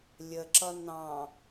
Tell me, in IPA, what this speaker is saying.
lʲ ə ǁ ʌ n ɑ̃

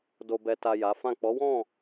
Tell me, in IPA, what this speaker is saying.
d o˨ b ɛ˨ t a˨ j a˨˦ f ã˦˨ k͡p ɔ˨˦ w ɔ̃˦˨

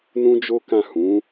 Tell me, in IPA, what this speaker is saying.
n ũ˦ d͡ʒ o˦ k ã˦˨ h ũ˨˦

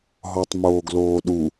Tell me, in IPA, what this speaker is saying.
ɦ ɔ tˤ m oː ɡ l oː ɗ u

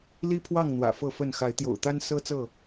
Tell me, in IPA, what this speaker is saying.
l i˦ pʰ w ɑ˥˨ ŋ n̪ w ä̰˨˩ f ɤ˥˨ f ə˥˨ n x a˨˦ ɪ̯ t̪ j o̰˨˩ ʊ̯ t̪ a˦ n s ɤ˦ t͡s ɤ˥˨

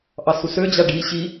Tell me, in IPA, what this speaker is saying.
ʔ ɑ s u s ø d͡ʑ a ɖ i ɕ i

